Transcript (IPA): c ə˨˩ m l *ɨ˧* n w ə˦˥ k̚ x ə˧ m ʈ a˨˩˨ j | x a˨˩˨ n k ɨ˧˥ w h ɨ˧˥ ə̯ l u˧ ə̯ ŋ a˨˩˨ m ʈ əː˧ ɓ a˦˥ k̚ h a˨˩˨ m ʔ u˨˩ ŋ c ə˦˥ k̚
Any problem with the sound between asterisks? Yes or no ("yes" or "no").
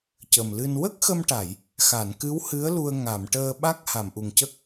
no